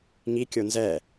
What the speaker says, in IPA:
ŋikʲo nzɛ

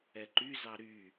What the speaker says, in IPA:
ɛǃyzɑ ɾy

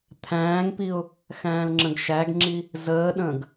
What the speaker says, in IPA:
t̪ʰæ̃ːŋpiʊ̯ | xæ̃ːlŋ͡ǁə̃ɡʃæɡŋ͡ǁi | zəːɗə̃ːɡ

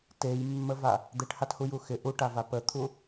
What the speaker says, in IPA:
tejmːəva | d̪eʈhathuju xɪ ʔuʈava pət̪ʰu

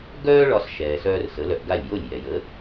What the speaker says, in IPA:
ɡœː˥ɭɒ˧s ʃɛː˩sœː˧r sə˩˥lœ˧ʔɡa˥˩lʲ jo˥˩lʲ jɛ˩jə˩˥

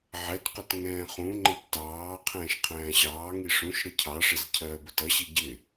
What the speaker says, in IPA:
ʕɛtqʊt ŋɛ̃ːχũŋ͡ǃɪb tɑː qʰɛ̃ːʃqʰæ̃ːɕɑːŋi ʂũʃ ɾəcʰɑʂɪz cʰɜːbʊtʌɕi ɟɪ

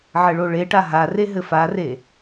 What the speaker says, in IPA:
ʕɘɭoɭeʈa ɦare ɦɘfare

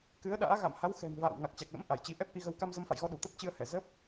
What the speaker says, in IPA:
kɨ˨˦ə̯ɗa̰ː˧˥ ɣa̰˧˨mha˨˦w xɛ̤˨˩n va̰ː˧˨w ŋa˨˩k̚t͡ɕa˨˩k̚lə̰˧˥m ʔa˧˩jt͡ɕi˧ ʔɛ˦˥p̚ʔi˧ɣə˧w ka˧mzə˨˦mfa̰˧˨jɣɔ˧ ɗu˧˩t̪ə˦˥p̚ t͡ɕɨ˧ə̯hɛ˧˩zə˦˥p̚

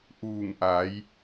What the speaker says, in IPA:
ʔuː˧˩ŋʔa˩˧j

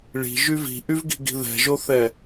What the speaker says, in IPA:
ɭi̤ʒy vi̤ʔyvɡi̤ɡi̤ ðɛ̤ʒoθɛ

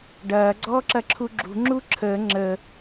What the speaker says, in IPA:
ɖɐː ɡ͡ǀɔːǁɐǁʰuɡ͡ǁṳ ŋ͡ǁuǁʰəː ŋ͡ǁə

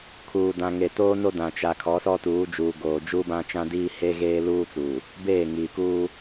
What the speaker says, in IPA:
kʰuː˨dã˨ŋe˨ toː˦no˦dã˨ t͡ʃa˨ kʰɔ˨˦sɔ˦tuː˨˦ d͡ʒuː˨ɡoː˨ d͡ʒuː˦bã˦t͡ʃã˦diː˦ he˦ɣeː˦luː˦t͡suː˨ | beː˦˨ ŋiː˨kuː˦

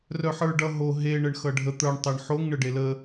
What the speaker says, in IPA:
rœħə˞ɖʌ ɦo ɦe ɳəɳxʌɖʱə t̪ə˞ɳ tˤʌɳħoŋ ɳəɖelə

